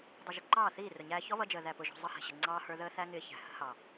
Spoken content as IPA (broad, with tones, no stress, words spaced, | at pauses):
dˤʊ˨ʒə˨ ǃɑː˦˨θiː˦˨rʊ˨ɲæː˧ çɔ˦βʌ˧d͡ʒəː˨ ðæ˨pʊ˨ʒɔ̤˨ zˤʌ˧hɛ̤˨ɕə˨ ŋ͡ǀɑː˧hə˞˧ ðəː˦θæ˦ŋɪː˧ çæ̤˨hə̤˦ hɑ˨